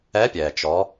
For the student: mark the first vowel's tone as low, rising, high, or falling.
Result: rising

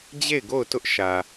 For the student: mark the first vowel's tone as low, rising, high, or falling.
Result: falling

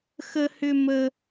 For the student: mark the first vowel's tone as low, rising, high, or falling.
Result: high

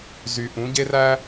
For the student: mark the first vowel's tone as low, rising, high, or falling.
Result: low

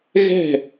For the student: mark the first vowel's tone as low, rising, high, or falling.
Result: falling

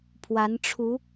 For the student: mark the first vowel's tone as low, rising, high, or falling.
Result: rising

